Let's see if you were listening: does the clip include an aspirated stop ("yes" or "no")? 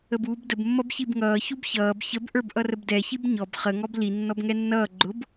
no